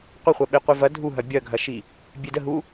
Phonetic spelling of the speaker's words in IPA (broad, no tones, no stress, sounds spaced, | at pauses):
qʷ ə χʷ ɐ ɓ e qʷ i v ɐ dʱ u ɦ ɐ bʲ ɐ ɡʱ ɐ ʃ i | bʲ e d ə ɦ u